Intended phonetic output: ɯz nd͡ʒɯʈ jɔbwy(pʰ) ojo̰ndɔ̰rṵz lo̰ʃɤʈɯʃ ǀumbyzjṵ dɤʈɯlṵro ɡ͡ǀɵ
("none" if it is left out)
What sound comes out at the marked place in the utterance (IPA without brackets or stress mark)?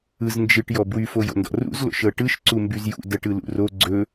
f